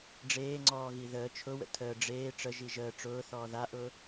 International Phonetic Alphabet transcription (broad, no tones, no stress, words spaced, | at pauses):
ɖ͡ʐeːŋ͡ǀɔːɣi ðəː t͡ʃʰʊwə̰ tʰəː ɖ͡ʐeː ʈ͡ʂə ʒiʒəː ʈ͡ʂʊːθɔː ðaʔʊː